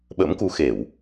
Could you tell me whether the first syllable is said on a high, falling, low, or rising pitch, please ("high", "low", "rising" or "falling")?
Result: rising